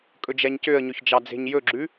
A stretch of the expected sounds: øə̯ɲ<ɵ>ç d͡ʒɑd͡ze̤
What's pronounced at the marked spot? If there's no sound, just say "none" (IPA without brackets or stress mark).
ɵ